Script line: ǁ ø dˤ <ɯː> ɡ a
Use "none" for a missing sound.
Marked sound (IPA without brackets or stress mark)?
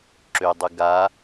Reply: ɯ